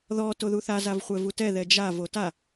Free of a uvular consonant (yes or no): no